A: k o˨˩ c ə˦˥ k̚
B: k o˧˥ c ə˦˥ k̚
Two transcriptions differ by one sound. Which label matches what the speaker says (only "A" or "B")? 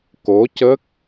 B